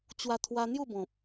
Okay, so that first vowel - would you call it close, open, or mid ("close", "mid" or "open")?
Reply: open